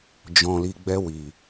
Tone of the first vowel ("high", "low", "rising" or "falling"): low